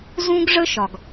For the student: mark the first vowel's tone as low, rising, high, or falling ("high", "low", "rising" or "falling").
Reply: high